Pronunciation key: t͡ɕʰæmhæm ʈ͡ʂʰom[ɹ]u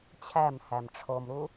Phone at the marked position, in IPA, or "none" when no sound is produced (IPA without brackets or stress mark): ɾ